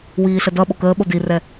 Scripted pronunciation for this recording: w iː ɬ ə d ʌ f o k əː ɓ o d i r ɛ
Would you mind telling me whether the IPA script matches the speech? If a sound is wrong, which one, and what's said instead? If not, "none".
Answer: f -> ɓ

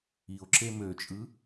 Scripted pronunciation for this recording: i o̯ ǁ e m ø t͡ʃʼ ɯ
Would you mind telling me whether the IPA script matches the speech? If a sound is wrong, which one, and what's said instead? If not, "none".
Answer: none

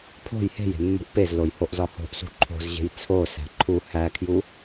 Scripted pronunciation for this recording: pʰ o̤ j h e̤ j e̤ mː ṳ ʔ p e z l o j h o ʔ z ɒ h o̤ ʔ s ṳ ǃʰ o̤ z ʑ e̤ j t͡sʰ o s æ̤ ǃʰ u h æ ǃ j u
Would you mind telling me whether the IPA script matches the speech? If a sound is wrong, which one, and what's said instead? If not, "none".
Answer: ǃ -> kʰ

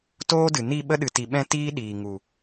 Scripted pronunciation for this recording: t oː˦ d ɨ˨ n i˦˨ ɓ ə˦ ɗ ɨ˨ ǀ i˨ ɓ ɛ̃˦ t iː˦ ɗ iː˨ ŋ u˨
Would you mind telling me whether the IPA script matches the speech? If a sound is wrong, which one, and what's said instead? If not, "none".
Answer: ǀ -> t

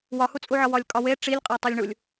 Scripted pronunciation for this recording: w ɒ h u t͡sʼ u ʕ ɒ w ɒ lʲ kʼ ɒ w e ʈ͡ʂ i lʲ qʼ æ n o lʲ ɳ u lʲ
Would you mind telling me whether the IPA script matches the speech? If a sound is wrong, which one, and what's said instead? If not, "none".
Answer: n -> tˤ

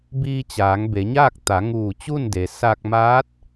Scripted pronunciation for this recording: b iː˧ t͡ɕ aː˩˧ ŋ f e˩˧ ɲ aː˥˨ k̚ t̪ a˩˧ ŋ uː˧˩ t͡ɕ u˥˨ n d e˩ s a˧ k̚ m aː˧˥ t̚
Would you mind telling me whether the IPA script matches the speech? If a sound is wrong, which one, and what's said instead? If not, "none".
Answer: f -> b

